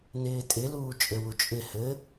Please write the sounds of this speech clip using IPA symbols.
n ɪː tʼ ɪ l uː t͡ʃʼ ɘ w u t͡ʃʼ ɪ h ɘ

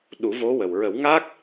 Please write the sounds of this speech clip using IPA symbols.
ɗ u˨˩˦ v o˧˥ w ə˨˩ w ɹ ə˨˩˦ w ŋ aː˦˥ k̚

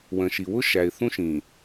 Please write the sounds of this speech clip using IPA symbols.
w ə̃˨ ʃ i˨ w ʊ˦ ʃ æ˨ ɪ̯ θ ũ˦ ʃ ĩ˨

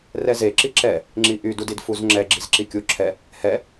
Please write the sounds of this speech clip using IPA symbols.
r ɛ z e ǁ i ǁ ɛ | ŋ͡ǁ i ʔ y d u d i d f u z ŋ͡ǁ ɛ ɡ͡ǁ i z ǁ i kʲ u ǁʰ ɛ | h ɛ

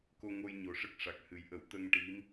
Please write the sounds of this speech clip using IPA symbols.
k o˧ ŋ o˧ j ɲ o˨˩ ʂ ə˦˥ k̚ ʂ a˨˩ k̚ h ɨ˨˩˦ j ʔ ə˨˩˦ w t̪ ə˧ ŋ ʈ i˧˥ m

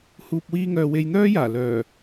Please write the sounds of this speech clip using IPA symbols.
h uː˨ p̚ w iː˧ ŋ œː˨ w e˧ j n̪ œː˥ j aː˨˩ l œː˨˩

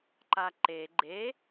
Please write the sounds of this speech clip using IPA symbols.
ǃ a ǃ e ɡ͡ǃ e

